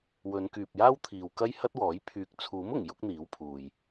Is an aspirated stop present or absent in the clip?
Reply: present